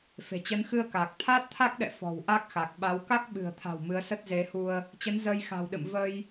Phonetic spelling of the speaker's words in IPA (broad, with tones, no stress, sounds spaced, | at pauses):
f e̤˨˩ t͡ɕ ə˨˦ n x ɨ˧ ə̯ k aː˨˩ k̚ t̪ʰ aː˦˥ t̚ t̪ʰ a˦˥ k̚ ɗ ɛ̰˧˨ f ɔ̤˨˩ w ʔ a˦˥ k̚ x a˨˩ k̚ ɓ a˨˦ w k a˦˥ k̚ ɓ ɨ̤˨˩ ə̯ t̪ʰ a̤˨˩ w m ɨ˨˦ ə̯ s ə˦˥ t̚ z e˨˦ h u˧ ə̯ | t͡ɕ ə˨˦ n z əː˧ j x a̤˨˩ w ɗ ɨ̰˧˨ m v ə˧ j